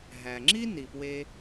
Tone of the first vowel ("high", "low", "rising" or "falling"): low